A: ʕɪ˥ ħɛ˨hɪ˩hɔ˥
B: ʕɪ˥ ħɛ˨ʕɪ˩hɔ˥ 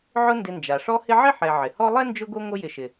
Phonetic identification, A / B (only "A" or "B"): B